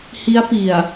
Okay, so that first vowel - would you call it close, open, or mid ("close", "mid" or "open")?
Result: close